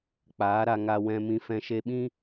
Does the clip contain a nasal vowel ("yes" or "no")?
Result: yes